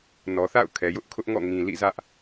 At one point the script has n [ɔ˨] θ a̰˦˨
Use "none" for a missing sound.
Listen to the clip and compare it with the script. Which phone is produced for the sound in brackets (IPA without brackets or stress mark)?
ɔ˨